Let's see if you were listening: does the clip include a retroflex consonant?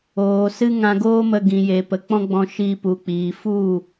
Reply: no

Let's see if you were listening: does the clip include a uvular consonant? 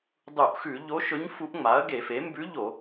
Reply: no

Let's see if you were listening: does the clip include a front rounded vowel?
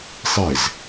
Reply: no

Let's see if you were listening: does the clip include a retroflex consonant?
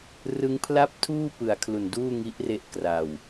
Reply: no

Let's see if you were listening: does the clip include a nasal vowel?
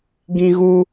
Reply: yes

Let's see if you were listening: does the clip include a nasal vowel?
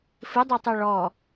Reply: no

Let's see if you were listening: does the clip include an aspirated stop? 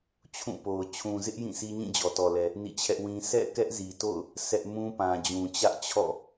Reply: yes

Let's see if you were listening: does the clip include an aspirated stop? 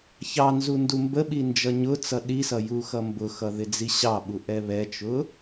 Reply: no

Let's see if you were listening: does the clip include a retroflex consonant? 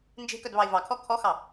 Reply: no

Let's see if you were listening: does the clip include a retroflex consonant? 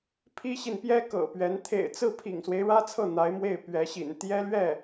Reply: yes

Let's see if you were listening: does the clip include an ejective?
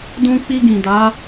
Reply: no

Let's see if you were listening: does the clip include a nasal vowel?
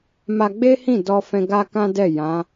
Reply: yes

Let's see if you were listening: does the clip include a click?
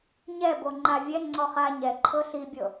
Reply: yes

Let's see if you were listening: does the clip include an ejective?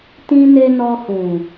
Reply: no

